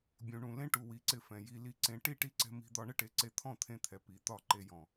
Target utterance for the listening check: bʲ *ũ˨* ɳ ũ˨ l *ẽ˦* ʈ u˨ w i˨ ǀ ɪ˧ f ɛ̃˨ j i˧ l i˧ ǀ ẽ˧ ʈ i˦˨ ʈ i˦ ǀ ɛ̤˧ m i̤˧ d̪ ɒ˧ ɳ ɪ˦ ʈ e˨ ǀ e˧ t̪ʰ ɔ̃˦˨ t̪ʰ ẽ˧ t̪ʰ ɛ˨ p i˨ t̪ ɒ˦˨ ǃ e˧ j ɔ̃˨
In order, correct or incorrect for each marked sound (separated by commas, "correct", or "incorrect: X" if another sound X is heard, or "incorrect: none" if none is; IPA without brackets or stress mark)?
correct, correct